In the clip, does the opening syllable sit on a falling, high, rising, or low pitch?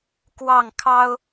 falling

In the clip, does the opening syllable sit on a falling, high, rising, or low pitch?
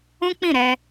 high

